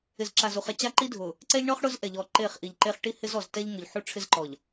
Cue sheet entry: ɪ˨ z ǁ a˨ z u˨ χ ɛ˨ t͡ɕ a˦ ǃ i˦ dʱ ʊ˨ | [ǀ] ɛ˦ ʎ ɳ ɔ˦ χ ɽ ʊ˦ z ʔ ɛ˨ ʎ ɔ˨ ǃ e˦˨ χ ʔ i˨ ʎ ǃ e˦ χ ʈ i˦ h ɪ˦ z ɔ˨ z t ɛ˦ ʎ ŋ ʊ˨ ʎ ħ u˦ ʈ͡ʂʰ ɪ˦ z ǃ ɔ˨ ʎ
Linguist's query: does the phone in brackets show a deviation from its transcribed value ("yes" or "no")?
no